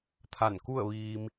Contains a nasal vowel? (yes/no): no